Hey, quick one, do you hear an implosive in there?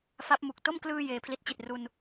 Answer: no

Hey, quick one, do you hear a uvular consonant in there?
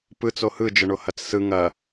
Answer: no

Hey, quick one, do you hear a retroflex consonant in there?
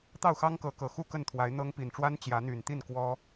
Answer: yes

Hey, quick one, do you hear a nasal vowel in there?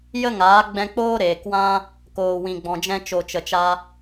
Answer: yes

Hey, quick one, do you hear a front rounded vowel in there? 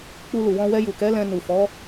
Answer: no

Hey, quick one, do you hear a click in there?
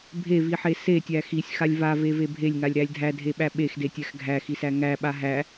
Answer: no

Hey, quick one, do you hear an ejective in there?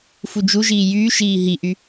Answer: no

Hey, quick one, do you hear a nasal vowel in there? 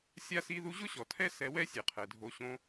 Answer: yes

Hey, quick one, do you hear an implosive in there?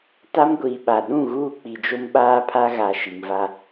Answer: yes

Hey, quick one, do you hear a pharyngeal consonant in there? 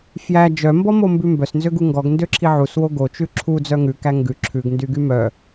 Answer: yes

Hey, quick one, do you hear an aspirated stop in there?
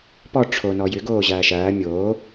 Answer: yes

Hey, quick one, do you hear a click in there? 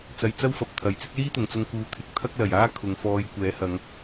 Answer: no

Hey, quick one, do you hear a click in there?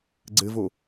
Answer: yes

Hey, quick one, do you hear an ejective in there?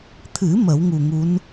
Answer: no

